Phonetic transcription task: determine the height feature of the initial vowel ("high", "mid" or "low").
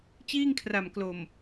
high